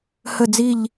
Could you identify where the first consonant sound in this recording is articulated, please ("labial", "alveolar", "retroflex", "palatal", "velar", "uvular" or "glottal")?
glottal